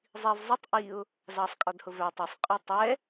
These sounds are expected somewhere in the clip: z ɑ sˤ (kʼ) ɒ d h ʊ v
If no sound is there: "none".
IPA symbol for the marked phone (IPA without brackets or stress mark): kʼ